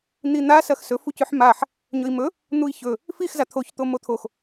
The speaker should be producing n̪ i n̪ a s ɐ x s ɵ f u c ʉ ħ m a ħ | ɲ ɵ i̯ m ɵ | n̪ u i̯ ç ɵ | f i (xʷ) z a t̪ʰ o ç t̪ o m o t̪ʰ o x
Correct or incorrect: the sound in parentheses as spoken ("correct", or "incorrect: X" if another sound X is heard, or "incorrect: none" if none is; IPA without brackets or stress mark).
incorrect: x